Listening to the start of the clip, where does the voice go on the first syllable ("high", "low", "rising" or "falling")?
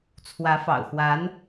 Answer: rising